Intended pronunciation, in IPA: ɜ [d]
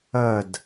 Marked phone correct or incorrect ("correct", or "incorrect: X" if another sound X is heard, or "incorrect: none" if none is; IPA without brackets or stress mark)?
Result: correct